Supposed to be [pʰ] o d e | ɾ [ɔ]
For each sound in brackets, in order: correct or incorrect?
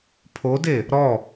correct, correct

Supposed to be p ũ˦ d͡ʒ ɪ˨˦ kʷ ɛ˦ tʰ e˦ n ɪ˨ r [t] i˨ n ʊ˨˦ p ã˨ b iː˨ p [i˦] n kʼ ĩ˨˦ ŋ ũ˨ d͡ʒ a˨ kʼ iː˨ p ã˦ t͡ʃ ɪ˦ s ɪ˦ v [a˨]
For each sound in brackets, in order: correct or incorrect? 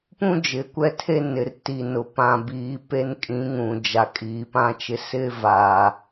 correct, incorrect: e˦, correct

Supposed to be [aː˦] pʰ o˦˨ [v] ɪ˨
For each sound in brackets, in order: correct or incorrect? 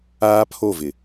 correct, correct

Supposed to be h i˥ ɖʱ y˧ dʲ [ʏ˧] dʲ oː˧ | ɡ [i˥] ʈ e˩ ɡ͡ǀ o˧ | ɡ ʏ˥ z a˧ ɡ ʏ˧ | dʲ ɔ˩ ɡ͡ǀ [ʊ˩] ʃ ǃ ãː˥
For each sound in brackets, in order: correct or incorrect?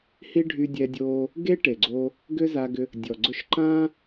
incorrect: ɛ˧, incorrect: e˥, incorrect: ʊ˧

